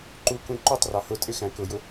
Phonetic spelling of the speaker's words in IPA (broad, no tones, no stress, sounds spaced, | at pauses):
ǃ u k ũ ǃ u tˤ r ɑ h ʊ tʼ ɪ x æ̃ k ʊ j ʊ